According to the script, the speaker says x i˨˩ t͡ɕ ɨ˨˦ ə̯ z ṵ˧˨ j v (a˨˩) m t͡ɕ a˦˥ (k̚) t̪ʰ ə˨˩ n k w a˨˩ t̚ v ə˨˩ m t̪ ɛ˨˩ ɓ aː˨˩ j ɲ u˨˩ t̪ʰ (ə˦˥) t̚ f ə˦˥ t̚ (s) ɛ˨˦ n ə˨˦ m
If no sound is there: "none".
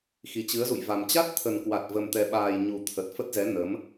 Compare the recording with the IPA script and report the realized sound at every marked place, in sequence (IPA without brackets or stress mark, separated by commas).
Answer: a˨˩, t̚, ə˨˩, z